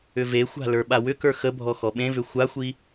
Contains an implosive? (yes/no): yes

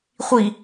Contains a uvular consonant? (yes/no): yes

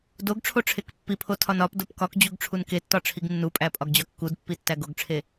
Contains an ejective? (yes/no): yes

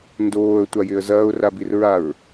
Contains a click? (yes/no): no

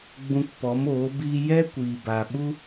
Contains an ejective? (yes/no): no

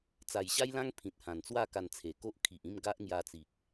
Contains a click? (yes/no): no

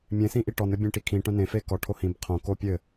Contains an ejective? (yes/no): no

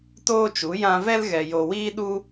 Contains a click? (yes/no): no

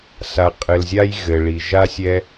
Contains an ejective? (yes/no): yes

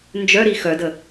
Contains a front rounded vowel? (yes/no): yes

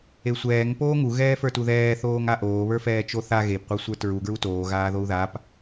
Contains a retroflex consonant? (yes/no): no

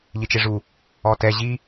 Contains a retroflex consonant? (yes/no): yes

